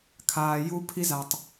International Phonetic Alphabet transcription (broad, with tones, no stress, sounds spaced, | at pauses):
kʰ aː˨ j u˦ pʰ i˦ z a˨ tˤ